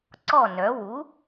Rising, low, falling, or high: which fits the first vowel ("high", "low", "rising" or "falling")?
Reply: falling